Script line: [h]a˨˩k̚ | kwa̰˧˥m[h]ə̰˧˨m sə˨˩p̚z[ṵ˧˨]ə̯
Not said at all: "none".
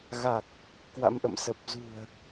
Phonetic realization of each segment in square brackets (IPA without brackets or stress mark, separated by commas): ɣ, ʔ, ṳ˨˩